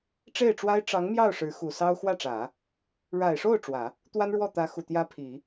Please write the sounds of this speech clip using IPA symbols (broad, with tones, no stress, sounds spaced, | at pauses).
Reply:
ʈ͡ʂ e˥˩ ɪ̯ ʈ͡ʂ w a˥ ɪ̯ ʈ͡ʂ ɑ˧˥ ŋ m j ɑ˥˩ ʊ̯ ʂ ɻ̩˧˥ x u˨˩ s ɑ˥ ʊ̯ x w ä˥˩ ʈ͡ʂ ä˨˩˦ | ɻ a˨˩ ɪ̯ ʂ o˥˩ ʊ̯ ʈ͡ʂ w ä˨˩˦ | t̪ w a˥ n ɻ w ɔ˥˩ t̪ ä˧˥ x u˨˩ t̪ j ä˥ pʰ i˨˩˦